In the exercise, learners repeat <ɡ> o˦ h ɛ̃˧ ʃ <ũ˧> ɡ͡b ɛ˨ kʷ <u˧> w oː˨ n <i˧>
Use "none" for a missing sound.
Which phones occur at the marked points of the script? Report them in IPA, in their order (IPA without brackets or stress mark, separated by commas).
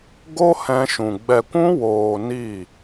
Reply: ɡ, ũ˨, ũ˧, i˦˨